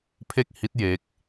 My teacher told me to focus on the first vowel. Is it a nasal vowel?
no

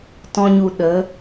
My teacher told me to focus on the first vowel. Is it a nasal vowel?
yes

